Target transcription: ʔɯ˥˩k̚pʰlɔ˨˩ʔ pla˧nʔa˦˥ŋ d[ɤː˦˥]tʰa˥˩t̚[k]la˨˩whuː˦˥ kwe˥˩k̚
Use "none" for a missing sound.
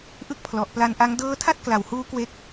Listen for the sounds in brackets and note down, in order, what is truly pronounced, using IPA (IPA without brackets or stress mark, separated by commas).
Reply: ɤː˦˥, k